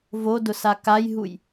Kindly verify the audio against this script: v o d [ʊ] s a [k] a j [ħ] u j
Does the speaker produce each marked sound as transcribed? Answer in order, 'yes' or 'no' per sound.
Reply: yes, yes, no

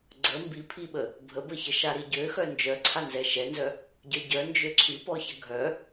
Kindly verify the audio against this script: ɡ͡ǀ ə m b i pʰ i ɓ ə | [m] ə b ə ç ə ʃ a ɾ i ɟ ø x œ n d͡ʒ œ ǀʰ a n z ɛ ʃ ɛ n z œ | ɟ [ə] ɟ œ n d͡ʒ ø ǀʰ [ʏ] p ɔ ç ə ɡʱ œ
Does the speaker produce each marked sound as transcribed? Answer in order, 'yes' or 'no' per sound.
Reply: no, no, no

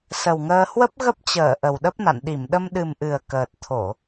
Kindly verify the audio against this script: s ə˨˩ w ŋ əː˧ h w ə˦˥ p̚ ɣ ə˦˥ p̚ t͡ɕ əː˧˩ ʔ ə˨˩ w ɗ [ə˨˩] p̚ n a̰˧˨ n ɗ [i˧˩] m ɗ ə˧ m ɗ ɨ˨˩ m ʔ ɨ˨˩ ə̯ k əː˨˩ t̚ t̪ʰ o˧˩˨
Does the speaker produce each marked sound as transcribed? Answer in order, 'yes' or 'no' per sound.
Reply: no, yes

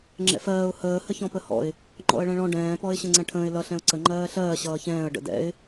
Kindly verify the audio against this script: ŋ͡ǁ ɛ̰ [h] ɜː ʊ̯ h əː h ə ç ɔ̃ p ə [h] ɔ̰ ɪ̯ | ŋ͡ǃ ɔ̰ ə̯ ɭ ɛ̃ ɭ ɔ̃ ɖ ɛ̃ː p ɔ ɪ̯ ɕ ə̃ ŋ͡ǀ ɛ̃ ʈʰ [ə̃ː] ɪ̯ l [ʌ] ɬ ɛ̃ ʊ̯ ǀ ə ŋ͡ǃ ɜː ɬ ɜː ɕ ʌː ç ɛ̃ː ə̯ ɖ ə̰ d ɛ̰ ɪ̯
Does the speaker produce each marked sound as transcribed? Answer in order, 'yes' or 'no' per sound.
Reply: no, yes, yes, yes

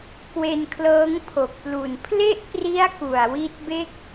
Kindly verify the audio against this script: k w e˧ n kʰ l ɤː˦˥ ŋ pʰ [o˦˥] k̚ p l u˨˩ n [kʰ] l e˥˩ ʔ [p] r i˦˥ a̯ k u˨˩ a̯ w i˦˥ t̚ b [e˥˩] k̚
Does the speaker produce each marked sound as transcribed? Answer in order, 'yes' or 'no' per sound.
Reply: no, no, yes, yes

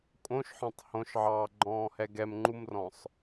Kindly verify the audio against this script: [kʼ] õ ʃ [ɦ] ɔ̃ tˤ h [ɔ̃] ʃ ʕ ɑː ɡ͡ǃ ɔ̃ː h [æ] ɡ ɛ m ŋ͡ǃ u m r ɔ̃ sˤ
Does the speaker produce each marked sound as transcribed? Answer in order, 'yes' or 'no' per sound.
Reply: yes, no, no, no

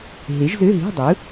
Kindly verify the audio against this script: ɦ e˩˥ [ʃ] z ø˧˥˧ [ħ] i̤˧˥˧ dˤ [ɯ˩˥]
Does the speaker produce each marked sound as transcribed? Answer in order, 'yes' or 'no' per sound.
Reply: no, no, yes

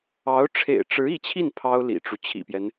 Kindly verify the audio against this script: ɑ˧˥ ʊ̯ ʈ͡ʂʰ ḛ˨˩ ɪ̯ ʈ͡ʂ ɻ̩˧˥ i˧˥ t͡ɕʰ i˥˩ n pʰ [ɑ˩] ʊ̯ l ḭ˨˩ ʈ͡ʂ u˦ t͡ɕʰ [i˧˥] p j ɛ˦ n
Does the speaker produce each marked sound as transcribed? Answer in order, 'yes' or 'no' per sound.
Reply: no, no

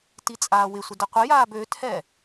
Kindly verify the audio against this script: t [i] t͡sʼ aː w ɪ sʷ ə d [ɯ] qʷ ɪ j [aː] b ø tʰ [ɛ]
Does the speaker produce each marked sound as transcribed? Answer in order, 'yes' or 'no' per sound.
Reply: yes, no, yes, yes

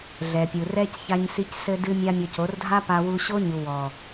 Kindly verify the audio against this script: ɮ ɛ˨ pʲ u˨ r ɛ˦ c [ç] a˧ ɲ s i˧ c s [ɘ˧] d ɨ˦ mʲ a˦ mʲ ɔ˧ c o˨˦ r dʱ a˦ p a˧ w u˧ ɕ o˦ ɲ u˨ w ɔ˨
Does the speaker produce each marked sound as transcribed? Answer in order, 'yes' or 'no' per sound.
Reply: yes, yes

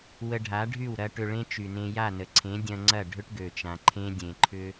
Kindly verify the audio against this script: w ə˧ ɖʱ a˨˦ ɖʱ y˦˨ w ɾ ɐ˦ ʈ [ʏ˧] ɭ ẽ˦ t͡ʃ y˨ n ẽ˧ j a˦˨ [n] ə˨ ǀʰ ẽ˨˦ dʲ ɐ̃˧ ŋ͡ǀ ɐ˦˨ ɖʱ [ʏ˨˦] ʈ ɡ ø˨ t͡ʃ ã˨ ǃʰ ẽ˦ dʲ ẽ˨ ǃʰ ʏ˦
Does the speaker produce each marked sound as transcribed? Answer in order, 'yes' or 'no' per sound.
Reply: yes, yes, no

